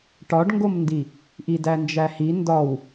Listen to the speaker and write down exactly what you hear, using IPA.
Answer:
ʈɒɖŋɡomndi | ʔidænd͡ʒæhi ndɒw

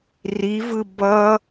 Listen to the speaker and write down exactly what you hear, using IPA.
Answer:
rivɯ bʌ

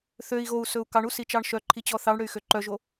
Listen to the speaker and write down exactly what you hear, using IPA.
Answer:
θøi̯ ɣou̯sɵu̯ kɑɳusit͡ʃɑɳ ʃœǃʰit͡ɕɔ θɑɳɽøy̯xø ǃœʒo

